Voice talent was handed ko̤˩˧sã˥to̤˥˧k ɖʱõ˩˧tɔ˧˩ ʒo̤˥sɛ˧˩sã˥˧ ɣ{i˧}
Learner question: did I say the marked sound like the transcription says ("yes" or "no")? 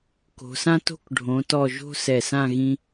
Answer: no